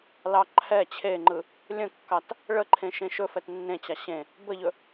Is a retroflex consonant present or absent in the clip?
present